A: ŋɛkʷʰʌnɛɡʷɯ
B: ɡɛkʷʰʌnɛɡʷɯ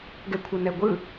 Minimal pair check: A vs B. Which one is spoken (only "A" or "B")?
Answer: B